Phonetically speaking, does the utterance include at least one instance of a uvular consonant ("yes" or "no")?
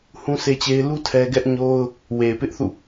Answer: no